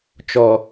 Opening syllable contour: low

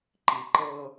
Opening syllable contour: low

